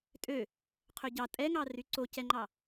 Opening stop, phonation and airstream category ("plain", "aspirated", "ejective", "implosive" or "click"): ejective